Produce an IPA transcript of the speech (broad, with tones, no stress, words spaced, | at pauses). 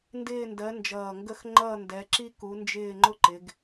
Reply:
ndɪː˥˧ndɜ˨˦nd͡ʒʌː˨˩ŋɡə˥˧x ŋ͡ǃʌː˥˧ndɛ˨˦ ǁi˥ ku˨˦nd͡ʒɪː˥˧ŋ͡ǃʊ˥ ǃɪ˨˦ɡ